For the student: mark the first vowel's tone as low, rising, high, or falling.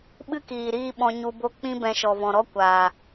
high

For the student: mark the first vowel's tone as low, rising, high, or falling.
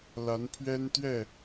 rising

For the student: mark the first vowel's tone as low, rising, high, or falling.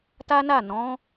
high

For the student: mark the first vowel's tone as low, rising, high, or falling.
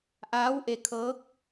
rising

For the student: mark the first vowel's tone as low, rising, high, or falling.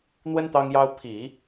high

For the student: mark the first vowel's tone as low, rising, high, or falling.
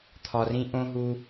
low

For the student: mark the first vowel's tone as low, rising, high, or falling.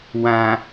low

